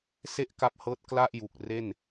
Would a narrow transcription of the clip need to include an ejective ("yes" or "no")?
no